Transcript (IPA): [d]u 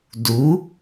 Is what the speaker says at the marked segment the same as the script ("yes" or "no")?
yes